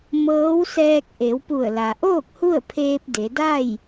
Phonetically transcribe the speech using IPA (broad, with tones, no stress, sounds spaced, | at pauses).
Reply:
m ɤː˧˥ w s ɛː˧ k̚ ʔ e˩˧ w p u˧˩ ə̯ l a˩ ʔ oː˥˨ k̚ h u˥˨ ə̯ pʰ eː˧ p̚ d e˩˧ d a˥˨ j